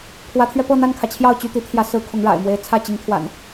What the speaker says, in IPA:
kʰ w ä˨˦ t̪ʰ ɥ ɛ˧ p ɤ˥˨ n̪ a˥˨ n kʰ ä˩ t͡ɕʰ j ɑ˥˨ ʊ̯ t͡ɕ y˦ t̪ i˨˦ t̪ʰ j ä˨˦ s ɹ̩˨˦ kʰ ʊ˨˦ ŋ ɻ a̰˨˩ ɪ̯ m w e˨˦ ɪ̯ t͡sʰ ä˥˨ t͡ɕ i˨˦ ŋ t̪ʰ w a̰˨˩ n

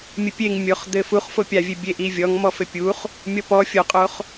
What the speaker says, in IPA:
mʲ ɘ pʲ e ŋ mʲ o χ d̪ ɘ f u χ f o pʲ a vʲ e bʲ e ʔ i vʲ ɔ ŋ m ɔ f ɘ pʲ u χ | mʲ ɔ p ɔ fʲ o qʼ o χ

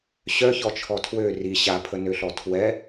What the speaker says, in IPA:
ɕ œ ç ɔ t͡ʃʰ ɔ tʰ w ø r i ɕ a pʰ ə n ø ɬ ɔ tʰ w ɛ

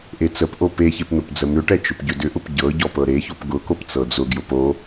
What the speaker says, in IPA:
ʔ e t͡s ə p ʔ o p e ç e p n̪ ʊ p d͡z ə m ʏ ʈ ɛ t͡ʃ ʊ p ɟ ʏ d ʏ ʔ ʊ p ɟ ɤ ɟ ɔ p ɤ ɾ e ç o p ɡ ʊ k o p t͡s ɤ d͡z ʊ ɡ j ʊ p o

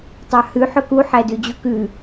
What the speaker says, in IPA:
tˤ ɑ h ʉ ħ ɵ k u ħ æ d ʉ d͡ʑ u k ʉ

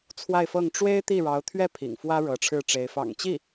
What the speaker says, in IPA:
t͡sʰ w a˥˧ ɪ̯ f ɤ˥˩ ŋ ʈ͡ʂ w e˥ ɪ̯ t̪ i˥˩ ɻ ɑ˧˥ ʊ̯ t̪ʰ ɥ ɛ˥˩ pʰ ḭ˨˩ ŋ f w ä˥ ɻ ɤ˧˥ ʈ͡ʂʰ ɻ̩˥˩ ʈ͡ʂ e˧˥ ɪ̯ f ɑ̰˨˩ ŋ t͡ɕ i˥˩

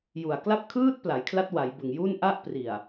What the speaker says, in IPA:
j u˨˩ a̯ k l a˥˩ p̚ kʰ ɯː˥˩ t̚ p l a˩˦ j kʰ l a˦˥ t̚ w a˩˦ j b ɯ˨˩ ŋ j u˥˩ n ʔ a˥˩ ʔ p r i˨˩ a̯

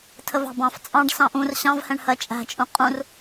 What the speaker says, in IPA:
tʰ ə v ɑ̤ b ɑ̃ f t͡sʼ ɑ̃ ɖ s ɑ̃ ʔ ũ r ɕ ɑ̃ v h ɛ̃ ɳ h ɜ t͡ʃʼ æ̤ t͡ʃʼ ũ qʼ ũ r

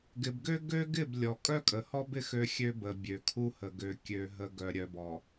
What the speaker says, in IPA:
ɡ ɪ˨ b ɡ ø˦ ɡ ø˦ ɡ ɪ˦˨ b lʲ ɔ˨ kʼ œ˦ kʼ ə˨ h ɔ˦ b ɪ˦ x ø˦ xʲ ø˦ b ə˨ bʲ ø˨ kʰ u˦ h ə˨ ɡ ø˨ kʲ ø˨ ɦ ə˨ ɡ œ˨ ɾʲ œ˨ b ɔ˨

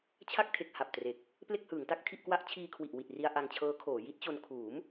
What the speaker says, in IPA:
t͡ɕʰ a˥˩ k̚ tʰ e˨˩ k̚ h a˨˩ p̚ t r e˨˩ k̚ | p l e˥˩ k̚ h ɯː˩˦ ŋ t a˦˥ k̚ tʰ i˥˩ ʔ k w a˦˥ ʔ t͡ɕʰ iː˧ kʰ w i˨˩ ʔ w i˨˩ t̚ r i˧ a̯ ʔ a˧ ŋ t͡ɕʰ ɤː˦˥ kʰ oː˩˦ j i˦˥ t̚ t͡ɕ o˧ n kʰ uː˩˦ m

